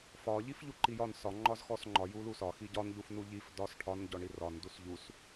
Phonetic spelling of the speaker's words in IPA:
fɒ ʎifʎuǃijɒn sɒ ŋ͡ǃɒzxɔsŋ͡ǃɒ julusɒ xiɟɒn ʎufnuʎif dɒs ʈʰɒn ɟɔɳirɒn dusʎus

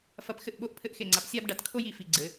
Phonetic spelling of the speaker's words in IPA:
fɐ˧pxɘ˥˩ʔ ɓo˥ʔ pʰɘ˥ʔxe˥˩ŋ͡ǀa˧p sʲa˥bɖa˩tkʰo˥j i˩fi˧ɡ͡ǀɘ˩˥

